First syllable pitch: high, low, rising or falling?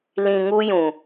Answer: low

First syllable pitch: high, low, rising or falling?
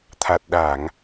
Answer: low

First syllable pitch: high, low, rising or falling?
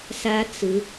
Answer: high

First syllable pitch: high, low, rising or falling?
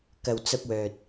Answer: low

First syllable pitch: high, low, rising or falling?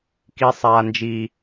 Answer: high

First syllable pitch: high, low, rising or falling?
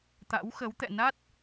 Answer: rising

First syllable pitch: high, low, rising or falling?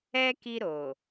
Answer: high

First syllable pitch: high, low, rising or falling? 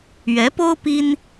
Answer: rising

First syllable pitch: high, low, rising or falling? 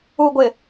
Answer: low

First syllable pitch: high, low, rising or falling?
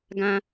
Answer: low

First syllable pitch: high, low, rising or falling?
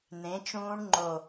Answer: rising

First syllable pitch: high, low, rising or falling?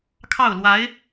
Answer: falling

